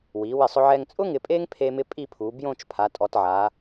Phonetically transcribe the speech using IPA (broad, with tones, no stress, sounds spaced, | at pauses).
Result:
w i˩˧ w ɪ˧˩ sˤ ʊ˧ ʕ ɛ˧ ŋ t͡sʼ ʊ˥ ŋ ɪ˧ pʼ e˥ ŋ pʰ e˥ m ɪ˥ pʼ i˥˧ pʰ u˩˧ b j õ˥˧ t͡ʃ pʰ a˩˧ tʼ ɔ˩˧ t ʕ a˩˧